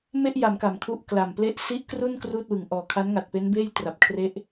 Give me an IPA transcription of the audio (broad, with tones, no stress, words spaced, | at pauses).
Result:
me˥˩ʔja˩˦m ka˨˩mkʰu˥˩ʔ kla˨˩mple˦˥ʔsi˦˥ʔkru˥˩n kruː˥˩t̚wɯ˩˦ŋʔɔː˨˩ kʰa˦˥nŋa˨˩t̚pe˦˥nbeː˥˩j tra˨˩p̚kʰre˦˥ʔ